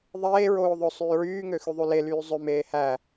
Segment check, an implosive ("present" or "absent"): absent